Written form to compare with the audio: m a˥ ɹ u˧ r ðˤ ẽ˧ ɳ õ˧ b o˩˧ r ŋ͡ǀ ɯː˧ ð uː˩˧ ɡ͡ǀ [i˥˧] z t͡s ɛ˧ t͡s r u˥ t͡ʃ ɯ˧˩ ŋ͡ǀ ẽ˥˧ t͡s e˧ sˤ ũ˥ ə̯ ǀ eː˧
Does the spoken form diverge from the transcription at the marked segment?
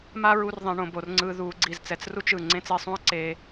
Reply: yes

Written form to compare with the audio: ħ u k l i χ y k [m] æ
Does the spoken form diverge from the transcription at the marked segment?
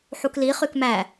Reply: no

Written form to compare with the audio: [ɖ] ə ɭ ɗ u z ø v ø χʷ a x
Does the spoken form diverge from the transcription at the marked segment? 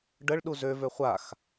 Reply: no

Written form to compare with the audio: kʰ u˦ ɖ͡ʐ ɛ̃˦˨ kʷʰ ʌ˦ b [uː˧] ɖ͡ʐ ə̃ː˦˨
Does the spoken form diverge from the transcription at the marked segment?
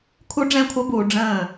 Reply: yes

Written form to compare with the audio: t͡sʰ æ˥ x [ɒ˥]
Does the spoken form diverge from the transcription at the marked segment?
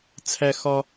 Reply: no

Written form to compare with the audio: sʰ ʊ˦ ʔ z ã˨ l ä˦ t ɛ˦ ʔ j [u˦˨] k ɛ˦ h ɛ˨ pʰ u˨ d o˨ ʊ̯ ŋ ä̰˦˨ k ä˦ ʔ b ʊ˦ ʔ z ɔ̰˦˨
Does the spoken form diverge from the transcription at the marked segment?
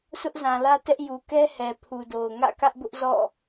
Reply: yes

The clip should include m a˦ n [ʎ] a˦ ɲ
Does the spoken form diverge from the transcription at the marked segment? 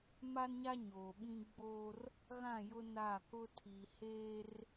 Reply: yes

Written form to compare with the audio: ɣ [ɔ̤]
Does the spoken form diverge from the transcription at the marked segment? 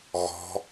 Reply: no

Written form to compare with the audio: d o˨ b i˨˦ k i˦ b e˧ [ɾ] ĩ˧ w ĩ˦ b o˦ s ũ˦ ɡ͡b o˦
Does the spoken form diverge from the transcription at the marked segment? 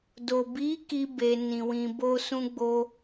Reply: yes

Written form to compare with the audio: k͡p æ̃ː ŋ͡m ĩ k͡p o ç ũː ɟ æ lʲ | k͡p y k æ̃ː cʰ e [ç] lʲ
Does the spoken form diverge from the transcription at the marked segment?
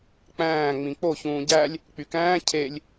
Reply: yes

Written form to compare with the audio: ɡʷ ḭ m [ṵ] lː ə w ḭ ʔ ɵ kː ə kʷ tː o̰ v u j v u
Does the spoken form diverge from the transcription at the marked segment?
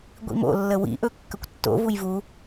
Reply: yes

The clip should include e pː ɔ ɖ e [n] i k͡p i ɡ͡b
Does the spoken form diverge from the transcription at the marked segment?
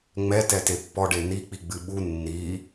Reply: no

